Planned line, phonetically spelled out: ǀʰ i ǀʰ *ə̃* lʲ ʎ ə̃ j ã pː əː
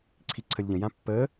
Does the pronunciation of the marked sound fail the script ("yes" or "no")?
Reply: yes